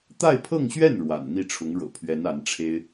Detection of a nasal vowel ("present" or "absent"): absent